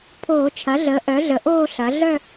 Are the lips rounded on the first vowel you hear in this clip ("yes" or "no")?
yes